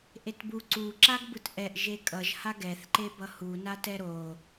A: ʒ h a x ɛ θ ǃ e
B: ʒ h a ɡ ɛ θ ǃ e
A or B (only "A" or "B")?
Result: B